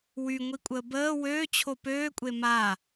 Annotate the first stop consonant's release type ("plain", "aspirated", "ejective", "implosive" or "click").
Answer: ejective